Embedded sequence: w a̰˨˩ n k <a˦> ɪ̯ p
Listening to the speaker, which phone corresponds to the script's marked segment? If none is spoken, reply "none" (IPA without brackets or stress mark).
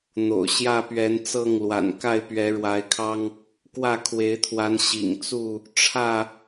a˥˨